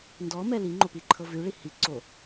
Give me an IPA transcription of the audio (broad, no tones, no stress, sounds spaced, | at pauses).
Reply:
n d ɔ m ɛ l i ŋ͡ǃ o p i ǃʰ ɤ v ʉ ɭ i h i ǀ o